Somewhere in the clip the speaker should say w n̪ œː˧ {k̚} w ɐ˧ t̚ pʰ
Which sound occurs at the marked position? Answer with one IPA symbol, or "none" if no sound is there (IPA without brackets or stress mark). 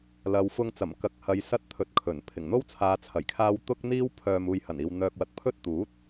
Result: k̚